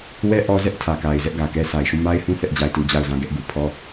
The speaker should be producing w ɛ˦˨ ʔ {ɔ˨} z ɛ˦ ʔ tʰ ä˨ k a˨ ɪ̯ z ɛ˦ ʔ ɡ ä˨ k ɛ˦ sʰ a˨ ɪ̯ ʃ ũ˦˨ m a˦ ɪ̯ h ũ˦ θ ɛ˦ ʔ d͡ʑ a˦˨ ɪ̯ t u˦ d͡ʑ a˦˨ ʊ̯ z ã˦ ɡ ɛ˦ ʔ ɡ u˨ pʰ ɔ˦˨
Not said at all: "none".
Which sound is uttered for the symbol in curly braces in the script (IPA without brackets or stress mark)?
ɔ˦